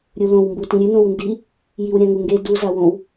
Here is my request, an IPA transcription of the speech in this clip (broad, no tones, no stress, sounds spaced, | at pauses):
ɾʲ u l õ w m b u t ĩ ɾʲ ʉ n õ w n d i | j i w ɾʲ ã ŋ u ŋ ɡ e d u z a w õ w